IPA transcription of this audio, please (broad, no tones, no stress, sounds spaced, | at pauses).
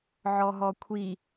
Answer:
ʕ ɔ ɦ ɔ kʷʰ i